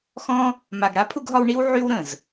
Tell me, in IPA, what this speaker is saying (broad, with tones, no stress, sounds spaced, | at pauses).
x ɔ̃˦ | m a˨ ɡ ɽ a˦ pʰ u˧ ɡ ɦ ɒ˧ w ɳ i˦ w ʕ y˦ w ɾ ə̃˨ z